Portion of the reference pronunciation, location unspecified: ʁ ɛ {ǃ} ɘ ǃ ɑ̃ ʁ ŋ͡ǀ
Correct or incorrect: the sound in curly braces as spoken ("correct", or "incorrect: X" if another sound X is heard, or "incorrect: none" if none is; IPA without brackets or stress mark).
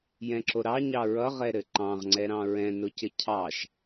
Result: incorrect: ɾ